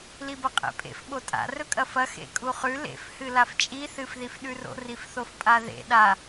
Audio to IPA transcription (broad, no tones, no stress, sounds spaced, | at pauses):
l i b ɐ qʼ ḛ pʼ ḛ f ɓ o tʼ a̰ r ɵ kʼ ɐ f ɐ x ḛ kʼ u χ ʉ l ḛ f h ɨ l a f t͡ʃʼ i θ ɨ f ð i f ɗ ʉ r o̰ r i f θ o f pʼ a ð ḛ ɗ a